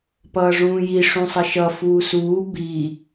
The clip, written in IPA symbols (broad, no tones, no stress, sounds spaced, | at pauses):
p ʌː ʐ ũː j i ʂ ũ sˤ ʌ ʃ ʌ f uː s uː b i